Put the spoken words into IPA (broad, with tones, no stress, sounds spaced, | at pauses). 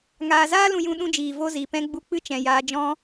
ŋ aː˨ z aː˦ l ũ˧ j ũ˧ ɗ ũ˧ d͡ʒ iː˨ v o˧ z i˨ p ɛ̃˧ ɡ͡b u˧ k͡p ɨ˦ t͡ʃ ɛ̃˨ j aː˧ d͡ʒ ɔ̃˦